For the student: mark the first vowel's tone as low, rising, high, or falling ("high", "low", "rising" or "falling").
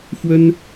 high